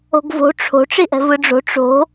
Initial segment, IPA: o̤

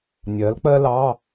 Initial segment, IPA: nʲ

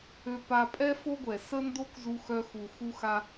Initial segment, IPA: ø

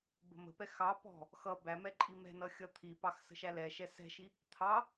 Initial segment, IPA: b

